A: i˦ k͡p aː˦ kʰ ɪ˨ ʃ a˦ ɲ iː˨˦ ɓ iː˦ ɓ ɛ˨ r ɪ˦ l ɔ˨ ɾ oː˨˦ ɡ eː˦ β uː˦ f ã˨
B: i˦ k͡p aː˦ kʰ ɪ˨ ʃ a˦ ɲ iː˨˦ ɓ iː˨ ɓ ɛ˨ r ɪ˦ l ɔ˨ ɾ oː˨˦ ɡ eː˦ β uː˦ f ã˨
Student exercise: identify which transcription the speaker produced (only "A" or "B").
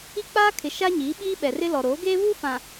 A